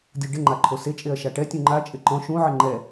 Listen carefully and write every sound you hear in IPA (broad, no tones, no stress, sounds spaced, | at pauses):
dʲ u ɖ ɪ ŋ͡ǃ a ǃʰ o s e t͡ʃʼ e ɐ̯ ʃ a ʈ ɛ tʲ ũ ŋ͡ǃ a t͡ʃʼ ɪ ǃ ɔ̃ ʃ ũ ʕ ɪ ŋ͡ǃ ɛ